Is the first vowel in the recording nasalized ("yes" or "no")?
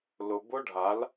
no